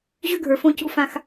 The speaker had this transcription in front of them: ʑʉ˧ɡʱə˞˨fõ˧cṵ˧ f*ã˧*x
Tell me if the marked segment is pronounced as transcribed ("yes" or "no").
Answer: yes